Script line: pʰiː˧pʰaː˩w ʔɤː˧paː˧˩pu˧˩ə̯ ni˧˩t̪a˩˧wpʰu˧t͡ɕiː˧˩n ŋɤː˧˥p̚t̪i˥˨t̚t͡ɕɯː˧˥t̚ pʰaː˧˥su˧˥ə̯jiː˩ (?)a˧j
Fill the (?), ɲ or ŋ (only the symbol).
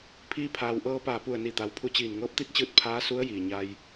ɲ